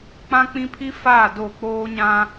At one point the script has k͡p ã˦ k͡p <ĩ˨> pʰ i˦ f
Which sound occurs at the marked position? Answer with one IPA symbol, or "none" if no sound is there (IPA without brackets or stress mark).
ĩ˦